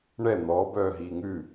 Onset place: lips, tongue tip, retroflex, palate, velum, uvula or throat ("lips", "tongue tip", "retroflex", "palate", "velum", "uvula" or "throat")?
retroflex